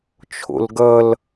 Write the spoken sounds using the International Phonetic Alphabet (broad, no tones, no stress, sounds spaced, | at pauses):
t͡ʃʰ o̰ l ɡ ʌ l